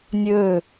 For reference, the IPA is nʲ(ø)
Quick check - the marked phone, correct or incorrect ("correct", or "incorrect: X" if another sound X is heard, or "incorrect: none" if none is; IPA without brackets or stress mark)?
correct